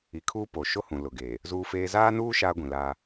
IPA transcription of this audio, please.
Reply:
i˨ kʰ uː˦ p o˨ ʃ o˦ h ũ˨ l ʊ˨ ɡ eː˨ | z uː˦ f eː˦ z aː˦ n uː˦ ʃ aː˦ ɡʷ ĩ˨ l aː˦

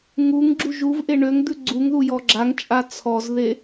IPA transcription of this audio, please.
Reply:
ŋ u ŋ ɡ͡ǁ u ʒ u v ʔ e ɳ ø ŋ d̪ ʉ ɡ͡ǀ u ŋ ð u j ɔ ɡ͡ǁ a ŋ t͡ʃʼ a t͡sʰ ɔ z ð e

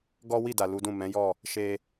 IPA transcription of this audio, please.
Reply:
ɡ ɔ˦ w i˦˨ d a˨ l u˨˦ d ũ˦˨ m ɛ̃˨˦ j ɔ˦˨ | ʃ e˧

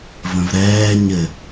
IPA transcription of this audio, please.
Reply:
v ə̃ v ɾ ɛː ɲ ɘ

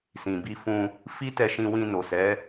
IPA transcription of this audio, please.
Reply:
s ĩ˨ b i˧ f ũ˧ | f i˦ t ɛ˧ ʃ ĩ˧ w ĩ˧ n o˨ s ɛ˨˦

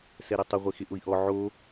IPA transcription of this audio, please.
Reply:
s ɛ ɾ ɛ tˤ ʊ ʁʷ e x ɪ ʔ ʊ i̯ ʔ ɔ ʕ o

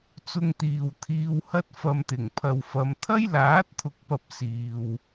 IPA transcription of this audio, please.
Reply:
t͡s ʊ˥ ŋ t̪ iː˧ w t̪ʰ iː˧ w h ɐ˥ t̚ f ɐ˧ m t̪ ɪ˨˩ ŋ pʰ ɐ˨ w f ɐ˨˧ m t̪ʰ ɐ˥ j l aː˨˥ t̚ t̪ʰ ʊ˨ k̚ p ɐ˨ p̚ s iː˨ w

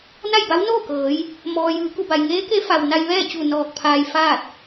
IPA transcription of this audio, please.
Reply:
n a˥˨ j b a˧˥ w n oː˥˨ k ɤː˩˧ j | m ɔː˩ j ɯː˩˧ k u˧˩ b a˩ j ŋ eː˧˥ k e˧˥ f a˩ w n a˧ j ʋ ɛː˥˨ t͡ɕ u˧˩ n ɔː˧˩ k̚ pʰ aː˧ j f aː˥˨ t̚

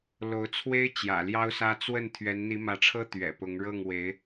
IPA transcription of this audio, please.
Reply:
l o˧˥ ʊ̯ t͡sʰ w e˥ ɪ̯ t͡ɕ j ä̰˨˩ l j ɑ˥ ʊ̯ s ä˥ t͡s w ə˥˩ n t̪ʰ ɥ ɛ˧˥ n n̪ i˧˥ m ä˧˥ ʈ͡ʂʰ ɤ˥ t̪ ɥ ɛ̰˨˩ p ʊ˧˥ ŋ ɻ ɤ˥˩ ŋ w e˧˥ ɪ̯

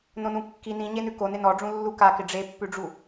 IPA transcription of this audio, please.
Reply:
n õ n ũ kː i n ĩ ɲ e n ʉ k o n ɪ n ɔ ɖ͡ʐ ũ lː u k a k ɪ ɖ͡ʐ e pː ʉ ɖ͡ʐ u

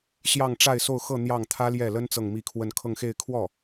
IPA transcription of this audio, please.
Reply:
ɕ j ɑ˥˧ ŋ ʈ͡ʂ a˥˧ ɪ̯ s o˥˧ ʊ̯ x ɤ˥˧ n̪ j ɑ˥˩ ŋ t̪ʰ ä˥ l j ɛ˥˩ l ə˥ n t͡s ɤ˥˧ ŋ m i˥˧ kʰ w ə˥˧ n kʰ ɤ˥˧ ŋ x e˥˧ ɪ̯ kʰ w ɔ˥˩

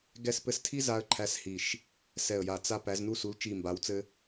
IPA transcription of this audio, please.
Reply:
ɡ ɛ˦˨ s p ɘ˦˨ s tʰ i˥ z a˥ ə̯ ǃʰ æ˥ s h i˦˨ ʃ | s ɛ˦˨ ə̯ j a˦˨ t͡s a˥ p æ˧˥ z n u˥ s u˧˥ l t͡ʃ i˦˨ m b a˧˥ w t͡s ɘ˥

